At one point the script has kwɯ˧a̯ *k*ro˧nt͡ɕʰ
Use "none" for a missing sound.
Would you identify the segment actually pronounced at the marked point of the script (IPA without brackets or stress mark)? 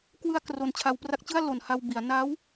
k